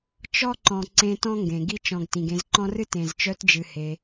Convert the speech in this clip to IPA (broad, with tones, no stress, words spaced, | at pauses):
t͡ʃɔ˦ǃɔ̃˨ ǀẽ˧ tɔ̃˦ŋɡẽ˨ ɡi˧t͡ʃɔ̃˨ɡ tĩ˨ɡẽ˧zǃɔ̃˦rɨ˦ tẽ˨zt͡ʃœ˧td͡ʒɨ˨ he˧